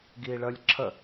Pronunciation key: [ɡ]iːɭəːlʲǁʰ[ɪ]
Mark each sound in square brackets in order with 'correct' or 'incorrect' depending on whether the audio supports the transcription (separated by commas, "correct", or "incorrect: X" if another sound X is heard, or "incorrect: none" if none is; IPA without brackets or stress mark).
correct, incorrect: ə